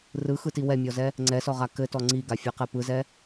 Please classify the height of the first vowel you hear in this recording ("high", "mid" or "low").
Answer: high